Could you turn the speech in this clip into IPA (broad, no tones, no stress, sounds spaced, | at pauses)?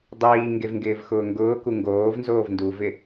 dˤ iː ŋ ɡ e v ŋ ɡ ɪː v x ʊː ŋ ɡ ʊː k u ŋ ɡ oː v n z oː v n d u v ɪ